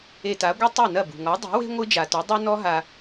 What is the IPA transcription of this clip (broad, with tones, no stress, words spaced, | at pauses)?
e˧ta˩˥ɡʷɛ˥ tˤɨ˥˩nɐ˥˩ bṳ˩ŋɔ˩˥ dˤi̤˩˥we̤˥ ŋʷɨ˥d͡ʒa˩tu˩˥ dˤu˥ nɔ˥ɦa˧